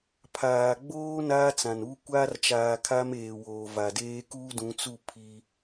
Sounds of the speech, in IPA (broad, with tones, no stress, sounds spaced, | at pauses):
pʰ aː˨ ɡ͡b oː˦ n aː˦ t͡s ã˨ n uː˦ kʷ aː˦ r t͡ʃ aː˨ kʰ a˦ m eː˨ w oː˨ v a˨ d eː˦ k uː˦ d ũ˨˦ t͡s u˦˨ pʰ i˦